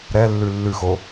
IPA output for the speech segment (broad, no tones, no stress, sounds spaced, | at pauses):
ɾ ɛ lː ʉ lː ʉ x o